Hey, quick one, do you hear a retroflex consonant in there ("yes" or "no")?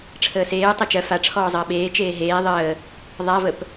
yes